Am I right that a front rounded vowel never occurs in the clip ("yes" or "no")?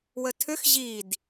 no